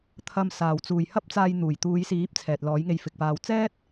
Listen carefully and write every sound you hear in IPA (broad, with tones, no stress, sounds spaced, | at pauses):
t̪ʰ ɐ˧ m s aː˨ w t͡s uː˨ j h ɐ˥ p̚ t͡s aː˧ j n̪ uː˨˩ j t̪ uː˨˧ j s iː˨˥ p̚ t͡sʰ ɛː˨ t̚ l ɔː˨˥ j ŋ e˧ j f ɪ˨ k̚ p aː˨ w t͡s ɛː˥ t̚